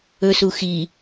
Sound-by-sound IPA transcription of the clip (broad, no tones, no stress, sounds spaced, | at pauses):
ɵ s u x i